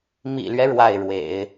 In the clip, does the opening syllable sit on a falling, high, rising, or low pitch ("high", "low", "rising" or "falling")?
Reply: low